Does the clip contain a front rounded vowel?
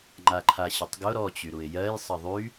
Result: yes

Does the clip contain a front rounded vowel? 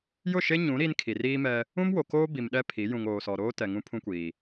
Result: no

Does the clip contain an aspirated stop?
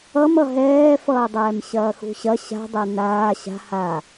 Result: no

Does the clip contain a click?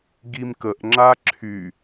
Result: yes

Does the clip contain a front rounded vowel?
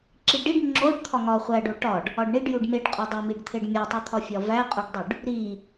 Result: no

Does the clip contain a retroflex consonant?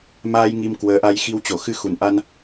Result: no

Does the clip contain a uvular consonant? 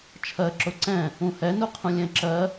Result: yes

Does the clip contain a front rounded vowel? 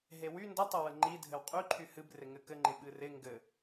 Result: yes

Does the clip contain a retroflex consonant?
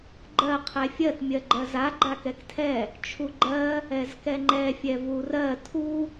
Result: no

